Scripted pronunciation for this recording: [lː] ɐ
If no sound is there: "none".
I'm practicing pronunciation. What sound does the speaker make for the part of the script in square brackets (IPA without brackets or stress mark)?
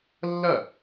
lː